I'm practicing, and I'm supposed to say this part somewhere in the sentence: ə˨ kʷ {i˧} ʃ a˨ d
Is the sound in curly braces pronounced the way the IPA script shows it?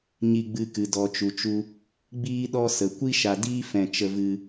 no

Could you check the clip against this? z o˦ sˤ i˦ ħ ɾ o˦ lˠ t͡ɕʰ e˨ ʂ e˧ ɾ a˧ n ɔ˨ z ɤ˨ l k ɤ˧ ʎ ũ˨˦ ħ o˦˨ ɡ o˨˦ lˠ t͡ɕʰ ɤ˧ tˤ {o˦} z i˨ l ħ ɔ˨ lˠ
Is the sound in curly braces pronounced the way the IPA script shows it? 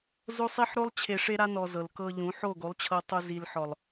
no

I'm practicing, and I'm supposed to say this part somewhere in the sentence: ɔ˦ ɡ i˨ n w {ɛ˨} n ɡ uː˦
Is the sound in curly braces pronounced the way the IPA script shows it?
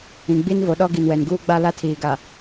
yes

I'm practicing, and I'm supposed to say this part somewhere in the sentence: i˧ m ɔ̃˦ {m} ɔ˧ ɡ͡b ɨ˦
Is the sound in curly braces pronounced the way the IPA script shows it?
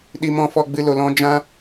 no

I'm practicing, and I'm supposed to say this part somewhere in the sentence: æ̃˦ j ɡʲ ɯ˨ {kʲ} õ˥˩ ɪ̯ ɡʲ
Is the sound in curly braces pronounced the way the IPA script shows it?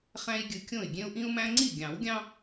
yes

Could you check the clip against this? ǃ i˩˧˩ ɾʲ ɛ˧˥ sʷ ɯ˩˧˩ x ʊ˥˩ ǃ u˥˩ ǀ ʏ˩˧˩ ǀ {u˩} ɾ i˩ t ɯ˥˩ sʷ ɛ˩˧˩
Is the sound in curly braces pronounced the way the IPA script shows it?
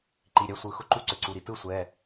yes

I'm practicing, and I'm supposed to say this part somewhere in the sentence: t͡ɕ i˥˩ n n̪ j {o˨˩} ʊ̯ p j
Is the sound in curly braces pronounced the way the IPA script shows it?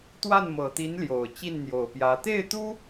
yes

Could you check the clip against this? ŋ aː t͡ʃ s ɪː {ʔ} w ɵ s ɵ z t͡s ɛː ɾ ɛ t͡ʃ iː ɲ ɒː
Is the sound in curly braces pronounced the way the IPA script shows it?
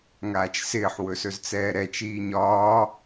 no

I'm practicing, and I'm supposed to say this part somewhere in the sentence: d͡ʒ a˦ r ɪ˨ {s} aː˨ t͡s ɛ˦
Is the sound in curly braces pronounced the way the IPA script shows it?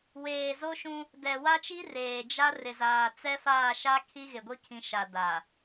no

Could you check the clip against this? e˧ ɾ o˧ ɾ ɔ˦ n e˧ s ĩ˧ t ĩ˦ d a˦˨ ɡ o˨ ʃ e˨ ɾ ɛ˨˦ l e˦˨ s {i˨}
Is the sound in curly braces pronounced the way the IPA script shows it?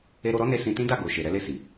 yes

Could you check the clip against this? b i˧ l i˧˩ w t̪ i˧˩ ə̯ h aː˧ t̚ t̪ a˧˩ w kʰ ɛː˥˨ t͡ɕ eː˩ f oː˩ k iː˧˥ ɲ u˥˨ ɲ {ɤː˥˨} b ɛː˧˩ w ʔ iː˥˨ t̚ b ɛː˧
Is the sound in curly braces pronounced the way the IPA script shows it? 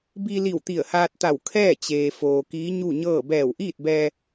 yes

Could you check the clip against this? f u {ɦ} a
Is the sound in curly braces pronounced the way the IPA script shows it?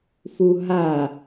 yes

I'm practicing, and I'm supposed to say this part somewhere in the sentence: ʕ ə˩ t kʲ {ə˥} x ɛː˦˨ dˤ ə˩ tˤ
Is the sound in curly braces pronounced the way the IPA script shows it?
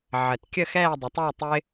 no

